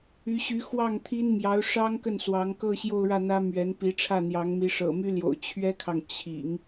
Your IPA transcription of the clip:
y˧˥ ɕ y˧˥ x w ɑ˥˩ ŋ t̪ʰ i˥ n m j ɑ˧˥ ʊ̯ ʂ ɑ˥ ŋ k ə˥˩ n s w ɑ˧˥ ŋ k ɤ˥˧ ɕ j o˥˧ ʊ̯ ɻ ä˥˩ n̪ ä˥ m ɥ ɛ˧˥ n p i˧˥ ʈ͡ʂʰ ä˥˩ n̪ j ɑ˧˥ ŋ m i˧˥ ʂ ɤ̰˨˩ m y˥ l j o̰˨˩ ʊ̯ t͡ɕʰ ɥ ɛ˥ kʰ ɑ˨ ŋ t͡ɕʰ ḭ˨˩˦ ŋ

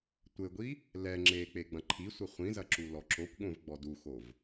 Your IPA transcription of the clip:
tʷ ɘ ɡʷ i | l ɛ ŋ͡ǁ e k͡p e ɡ͡b ɐ̃ ǃʰ i sʷ ɘ χʷ ĩ z ɐ ǁ u l ɔ ǁ o kʷ ɠ õ v ɡ͡b ɔ d u x o v

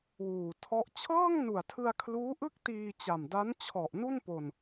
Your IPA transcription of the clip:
w uː˨˩ tʰ ɔ˦˥ ʔ t͡ɕʰ ɤː˥˩ ŋ n u˨˩ a̯ tʰ ɯ˧ a̯ kʰ l uː˦˥ ʔ ɯ˥˩ k̚ t iː˧ t͡ɕ a˨˩ m d a˦˥ n t͡ɕʰ ɔ˨˩ ʔ n u˥˩ n p o˧ n

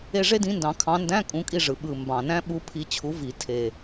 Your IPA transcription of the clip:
e˦˨ ʐ e˦˥ d ĩ˨˦ n d ɑ̃˨˩˦ kʰ ɑ̃˨˦ n d æ̃˧˥˧ kʼ ũ˨˦ kʼ i˦˨ ʐ ɯ˨˩ ɓ ɯ˨˩ m b ɑ̃˨˩ n æ̃˦˥ ɓ u˨˦ pʰ i˨˦ t͡ɕʰ u˨˦ v i˨˩˦ tʰ e˨˩

